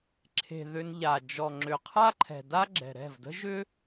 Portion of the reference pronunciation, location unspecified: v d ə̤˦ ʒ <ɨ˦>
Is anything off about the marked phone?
yes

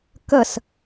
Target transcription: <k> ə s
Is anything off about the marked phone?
no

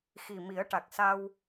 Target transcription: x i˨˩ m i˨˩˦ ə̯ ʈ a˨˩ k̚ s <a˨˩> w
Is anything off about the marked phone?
yes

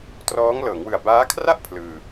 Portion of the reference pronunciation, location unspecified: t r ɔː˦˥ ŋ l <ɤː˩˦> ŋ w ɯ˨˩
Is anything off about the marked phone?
no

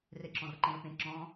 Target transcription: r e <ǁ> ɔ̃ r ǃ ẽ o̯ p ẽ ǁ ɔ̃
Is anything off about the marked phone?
no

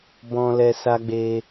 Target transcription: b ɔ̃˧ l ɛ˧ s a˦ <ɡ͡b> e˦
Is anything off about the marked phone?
no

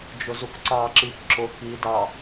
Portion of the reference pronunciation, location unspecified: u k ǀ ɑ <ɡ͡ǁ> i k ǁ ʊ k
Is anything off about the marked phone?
yes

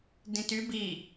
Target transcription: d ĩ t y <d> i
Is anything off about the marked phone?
yes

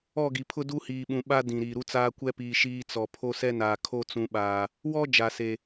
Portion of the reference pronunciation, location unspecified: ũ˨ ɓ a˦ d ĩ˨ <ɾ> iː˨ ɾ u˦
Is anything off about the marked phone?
no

